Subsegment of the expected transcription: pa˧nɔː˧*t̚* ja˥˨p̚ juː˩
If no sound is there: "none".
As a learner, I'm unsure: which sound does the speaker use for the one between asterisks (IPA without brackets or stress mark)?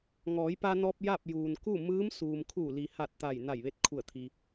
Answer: p̚